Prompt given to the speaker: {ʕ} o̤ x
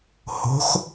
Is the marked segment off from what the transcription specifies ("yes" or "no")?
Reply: yes